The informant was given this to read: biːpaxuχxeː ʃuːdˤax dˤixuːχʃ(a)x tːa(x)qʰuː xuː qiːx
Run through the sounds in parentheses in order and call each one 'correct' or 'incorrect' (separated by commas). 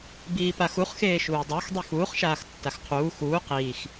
incorrect, correct